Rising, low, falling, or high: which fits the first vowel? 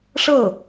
falling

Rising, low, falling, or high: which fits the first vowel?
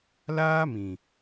high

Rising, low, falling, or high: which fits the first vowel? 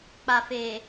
low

